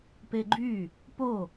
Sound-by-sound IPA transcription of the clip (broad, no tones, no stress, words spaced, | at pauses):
peɡ͡ǃy | po